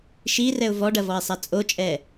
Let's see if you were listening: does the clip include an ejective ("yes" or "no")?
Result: yes